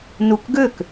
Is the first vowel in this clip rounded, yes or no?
yes